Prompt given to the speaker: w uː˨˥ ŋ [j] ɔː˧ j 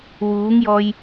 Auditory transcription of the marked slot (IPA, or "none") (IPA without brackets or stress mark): j